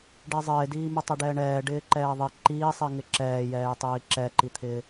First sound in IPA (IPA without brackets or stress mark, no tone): ɖ